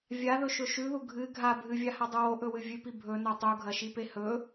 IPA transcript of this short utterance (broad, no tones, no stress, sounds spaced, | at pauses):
vʲ a ð ɵ ʃ ɵ ʃ ʉ ð u ɡʱ ɨ ɡʱ a bʱ ɨ vʲ a h a dˤ ɨ w o ʔ ɵ w ɨ vʲ ʉ p i bʱ ɵ n o tˤ u ɡʱ ɐ ʃ i p e h ɵ